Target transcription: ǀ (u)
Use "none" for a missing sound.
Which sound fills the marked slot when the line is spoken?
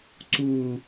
u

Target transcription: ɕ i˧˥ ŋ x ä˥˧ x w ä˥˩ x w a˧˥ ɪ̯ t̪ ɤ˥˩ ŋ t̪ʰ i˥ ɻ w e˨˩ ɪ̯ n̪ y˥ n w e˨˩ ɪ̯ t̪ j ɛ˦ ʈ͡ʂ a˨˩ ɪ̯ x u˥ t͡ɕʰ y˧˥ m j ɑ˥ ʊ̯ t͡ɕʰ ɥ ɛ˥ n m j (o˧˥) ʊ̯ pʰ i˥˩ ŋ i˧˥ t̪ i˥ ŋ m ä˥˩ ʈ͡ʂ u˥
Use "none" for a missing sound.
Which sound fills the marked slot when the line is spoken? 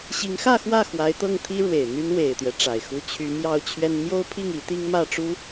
o˥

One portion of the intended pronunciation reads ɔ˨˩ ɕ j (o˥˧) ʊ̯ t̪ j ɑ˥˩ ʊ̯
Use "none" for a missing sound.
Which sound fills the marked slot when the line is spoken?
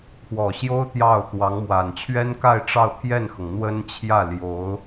o˥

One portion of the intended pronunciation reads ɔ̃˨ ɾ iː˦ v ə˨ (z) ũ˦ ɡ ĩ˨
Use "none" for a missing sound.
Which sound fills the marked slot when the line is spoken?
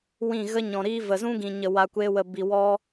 z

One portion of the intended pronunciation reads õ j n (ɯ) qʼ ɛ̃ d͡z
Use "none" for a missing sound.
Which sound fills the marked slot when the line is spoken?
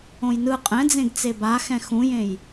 ɯ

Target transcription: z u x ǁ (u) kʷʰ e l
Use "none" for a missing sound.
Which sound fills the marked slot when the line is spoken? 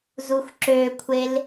ø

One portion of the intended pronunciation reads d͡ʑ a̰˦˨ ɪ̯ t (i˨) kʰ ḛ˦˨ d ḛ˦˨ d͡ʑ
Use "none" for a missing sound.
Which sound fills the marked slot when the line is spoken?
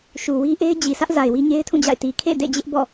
i˨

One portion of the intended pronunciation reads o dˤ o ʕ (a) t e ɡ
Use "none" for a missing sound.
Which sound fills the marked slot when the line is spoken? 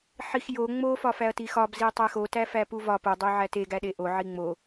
æ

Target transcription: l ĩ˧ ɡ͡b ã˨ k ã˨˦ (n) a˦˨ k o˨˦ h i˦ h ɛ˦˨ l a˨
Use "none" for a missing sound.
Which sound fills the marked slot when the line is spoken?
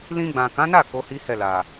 n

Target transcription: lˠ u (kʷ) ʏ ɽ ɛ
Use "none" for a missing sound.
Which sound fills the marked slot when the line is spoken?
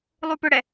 p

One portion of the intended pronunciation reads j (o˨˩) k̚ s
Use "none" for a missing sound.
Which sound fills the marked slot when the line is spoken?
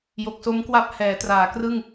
o˨˩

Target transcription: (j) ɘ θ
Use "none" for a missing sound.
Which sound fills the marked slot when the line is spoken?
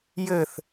j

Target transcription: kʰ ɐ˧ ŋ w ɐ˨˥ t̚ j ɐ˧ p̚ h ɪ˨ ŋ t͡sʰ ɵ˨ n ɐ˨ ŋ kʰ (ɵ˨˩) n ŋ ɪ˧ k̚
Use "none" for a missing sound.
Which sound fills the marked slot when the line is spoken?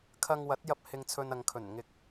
ɵ˨˩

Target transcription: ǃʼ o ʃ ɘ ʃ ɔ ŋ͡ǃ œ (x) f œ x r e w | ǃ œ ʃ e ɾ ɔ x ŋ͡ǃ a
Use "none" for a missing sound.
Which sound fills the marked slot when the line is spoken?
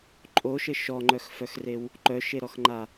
x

